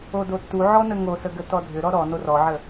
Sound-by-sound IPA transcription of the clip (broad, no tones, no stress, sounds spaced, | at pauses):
o d o tː u ʕ ɔ n ə ŋ o s ə ɡ ə t ɔ dʱ ʏ ɾ ɔ ɾ ɔ n o r ɔ ʕ ə